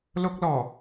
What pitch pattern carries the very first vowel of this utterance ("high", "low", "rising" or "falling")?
high